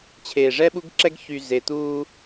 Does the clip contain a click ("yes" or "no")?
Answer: yes